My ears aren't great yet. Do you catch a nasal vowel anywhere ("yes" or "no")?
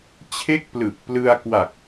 no